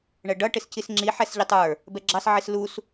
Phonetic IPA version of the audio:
ɳ ɛ ɖ ʌ ʈ ɪ s c i s ŋ͡ǁ i ħ ɛ s ʎ ɪ tˤ ə˞ | b ɛ ɡ͡ǁ ɑ s ʕ i s l u s

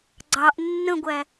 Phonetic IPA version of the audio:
ɡ͡ǀ ɑ ʔ nː ə̃ ɡʷ æ

